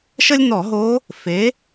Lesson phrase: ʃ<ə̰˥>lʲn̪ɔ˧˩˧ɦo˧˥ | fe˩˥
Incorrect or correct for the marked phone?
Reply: incorrect: ə˥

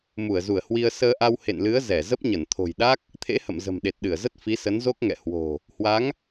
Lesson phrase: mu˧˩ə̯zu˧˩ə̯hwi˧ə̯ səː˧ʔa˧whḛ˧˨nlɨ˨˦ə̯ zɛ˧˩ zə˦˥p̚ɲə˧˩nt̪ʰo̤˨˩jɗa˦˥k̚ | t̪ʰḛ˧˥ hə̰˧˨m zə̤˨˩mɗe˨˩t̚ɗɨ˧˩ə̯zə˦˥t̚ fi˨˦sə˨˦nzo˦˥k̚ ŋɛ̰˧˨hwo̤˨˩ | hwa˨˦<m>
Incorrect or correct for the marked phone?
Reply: incorrect: ŋ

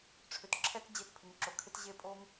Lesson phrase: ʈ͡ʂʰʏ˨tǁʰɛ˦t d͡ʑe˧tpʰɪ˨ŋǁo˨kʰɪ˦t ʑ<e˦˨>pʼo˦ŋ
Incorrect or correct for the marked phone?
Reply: correct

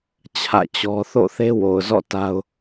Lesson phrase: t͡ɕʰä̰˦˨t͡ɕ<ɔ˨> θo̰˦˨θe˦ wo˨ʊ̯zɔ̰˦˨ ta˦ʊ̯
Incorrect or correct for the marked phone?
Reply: incorrect: ɔ˦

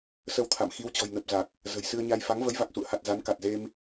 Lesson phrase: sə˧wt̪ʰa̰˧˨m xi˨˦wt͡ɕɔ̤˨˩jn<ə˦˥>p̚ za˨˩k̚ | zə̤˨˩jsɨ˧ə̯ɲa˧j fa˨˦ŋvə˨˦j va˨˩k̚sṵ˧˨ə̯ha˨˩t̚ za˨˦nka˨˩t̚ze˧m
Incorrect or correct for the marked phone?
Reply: incorrect: ə˨˩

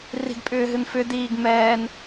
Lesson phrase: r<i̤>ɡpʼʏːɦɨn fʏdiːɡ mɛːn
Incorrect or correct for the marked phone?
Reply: correct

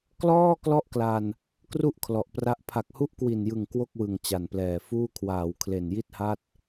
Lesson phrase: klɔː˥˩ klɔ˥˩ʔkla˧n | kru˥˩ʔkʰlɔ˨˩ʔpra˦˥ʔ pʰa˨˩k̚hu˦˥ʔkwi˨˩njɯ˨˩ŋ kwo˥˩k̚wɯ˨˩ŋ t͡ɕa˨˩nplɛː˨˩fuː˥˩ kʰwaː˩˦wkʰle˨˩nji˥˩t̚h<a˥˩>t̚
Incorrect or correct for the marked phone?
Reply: correct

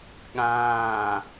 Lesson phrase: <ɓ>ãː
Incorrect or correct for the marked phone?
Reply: incorrect: ɠ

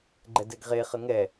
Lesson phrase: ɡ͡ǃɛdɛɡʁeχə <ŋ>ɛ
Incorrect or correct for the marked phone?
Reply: correct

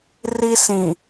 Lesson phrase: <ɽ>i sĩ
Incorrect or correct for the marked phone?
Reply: incorrect: r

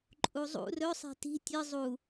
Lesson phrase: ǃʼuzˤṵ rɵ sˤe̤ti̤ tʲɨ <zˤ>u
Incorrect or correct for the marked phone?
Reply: correct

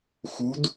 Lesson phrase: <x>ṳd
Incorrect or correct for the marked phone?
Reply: correct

